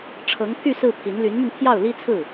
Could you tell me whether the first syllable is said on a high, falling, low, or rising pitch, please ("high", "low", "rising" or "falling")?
rising